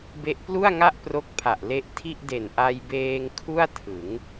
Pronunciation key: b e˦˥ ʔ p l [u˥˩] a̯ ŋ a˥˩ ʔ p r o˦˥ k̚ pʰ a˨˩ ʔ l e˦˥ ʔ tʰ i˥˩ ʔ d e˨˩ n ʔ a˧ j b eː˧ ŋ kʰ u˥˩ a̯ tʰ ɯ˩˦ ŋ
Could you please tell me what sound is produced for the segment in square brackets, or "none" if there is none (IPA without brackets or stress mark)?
u˥˩